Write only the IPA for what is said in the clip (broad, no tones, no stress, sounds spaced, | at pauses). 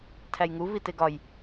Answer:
tʰ æ j ŋ u v i t e ɡ ɒ j